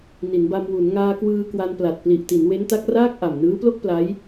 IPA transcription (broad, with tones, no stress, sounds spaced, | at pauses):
n i˩˦ n b a˧ m w u˩˦ n ŋ aː˧ k w ɯː˧ k w a˧ n p l a˨˩ t̚ p l i˨˩ ʔ t i˩˦ n w e˦˥ n t a˦˥ k̚ r aː˥˩ k̚ ʔ a˨˩ m n ɯː˦˥ p l o˥˩ k̚ p l a˦˥ j